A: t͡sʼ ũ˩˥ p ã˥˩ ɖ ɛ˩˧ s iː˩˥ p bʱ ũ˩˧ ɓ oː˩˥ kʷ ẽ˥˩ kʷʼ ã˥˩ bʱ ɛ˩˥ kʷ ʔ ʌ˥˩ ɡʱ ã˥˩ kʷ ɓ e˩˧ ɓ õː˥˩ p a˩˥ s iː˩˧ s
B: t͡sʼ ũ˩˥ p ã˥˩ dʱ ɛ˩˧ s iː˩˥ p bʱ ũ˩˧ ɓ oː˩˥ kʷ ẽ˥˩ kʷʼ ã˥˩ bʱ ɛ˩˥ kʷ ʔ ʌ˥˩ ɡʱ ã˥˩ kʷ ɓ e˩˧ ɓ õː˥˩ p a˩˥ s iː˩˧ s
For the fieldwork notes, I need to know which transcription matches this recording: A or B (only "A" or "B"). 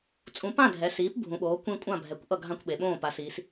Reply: B